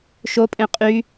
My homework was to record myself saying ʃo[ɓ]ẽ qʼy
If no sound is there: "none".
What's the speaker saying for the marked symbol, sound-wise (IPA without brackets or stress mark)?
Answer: pʼ